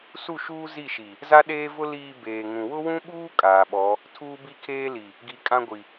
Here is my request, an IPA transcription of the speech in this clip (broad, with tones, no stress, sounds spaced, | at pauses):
s u˦˨ ʃ uː˦ z i˦˨ ʃ i˨ | z a˦ ɗ eː˦ v ʊ˦ l iː˨ b eː˨ ŋ ũ˨ w ʊ˦ w ũ˦ ɓ uː˦ kʼ aː˨ ɓ ɔ˨˦ | tʰ uː˦ b i˦ kʰ eː˦ l i˨ | ɡ i˨ kʼ ã˦ ɡʷ i˨